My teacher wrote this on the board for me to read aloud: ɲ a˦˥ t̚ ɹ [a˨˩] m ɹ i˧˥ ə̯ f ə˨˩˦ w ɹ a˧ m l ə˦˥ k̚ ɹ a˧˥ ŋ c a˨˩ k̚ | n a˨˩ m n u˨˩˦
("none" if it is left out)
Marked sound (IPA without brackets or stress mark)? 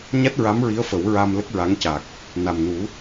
a˧˥